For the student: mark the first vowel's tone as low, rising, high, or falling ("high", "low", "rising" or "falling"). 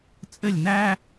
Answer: falling